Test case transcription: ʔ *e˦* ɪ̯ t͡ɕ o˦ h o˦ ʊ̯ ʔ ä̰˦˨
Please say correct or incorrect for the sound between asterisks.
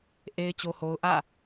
correct